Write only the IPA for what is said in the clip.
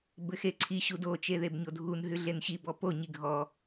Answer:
bɘxeǀʰi ɕudo t͡ʃeðebɲodʱun ɦʉɮenɕi bɔpo ɲiɡʱɔ

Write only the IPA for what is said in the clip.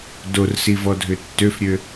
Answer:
dorsivɔdʱʏ tːøfɾʲø

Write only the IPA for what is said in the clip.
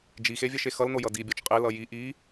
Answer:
d͡ʒixe vʲɛʃexʌlno jʌdibʲɔt͡ʃ qʼelʌ ji ʔi

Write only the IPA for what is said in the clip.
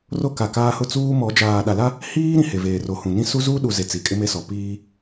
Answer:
ro˦ka˨kaː˦hʊ˦ t͡suː˦mɔ˨˦ d͡ʒaː˨ ɗa˨la˦ | hiː˦ ɾĩ˨he˨veː˨ ro˨hũ˨ nĩ˦su˦ zuː˦ɗu˨ ze˨ t͡si˨kʼɪ˦me˦sɔ˨ piː˦

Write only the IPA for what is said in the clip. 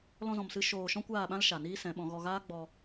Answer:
lɔ̃˧zɔ̃˨msɨ˧ ʃoː˧ ʃɔ̃˦kʷaː˦˨ɓã˦l ʃa˨niː˦sɛ̃˨˦ɓɔ̃˨˦ ɣɔ˧ɣaː˦ɡ͡bɔ˧

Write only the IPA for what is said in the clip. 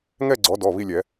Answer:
ŋɛ˥˧ɡ͡ǀɔ˨˦dɔ˩˧˩ βi˥˧lʲɛ˨˩˦

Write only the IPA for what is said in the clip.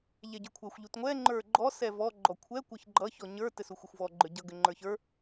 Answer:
ʎɛɟə˞kʷʰɛxʷ ʎutŋʷɛ ŋ͡ǃə˞ɡ͡ǃɔ sɛvɔ ɡ͡ǃɔkʷʰɛ kʷʌçɡ͡ǃʌ çɔɲə˞ tɘsuxʷʌxʷvɔ ɡ͡ǃə˞ɟʌ ɡɘŋ͡ǃə˞çə˞

